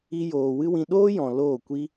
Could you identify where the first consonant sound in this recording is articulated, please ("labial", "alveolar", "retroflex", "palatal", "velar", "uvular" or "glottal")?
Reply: palatal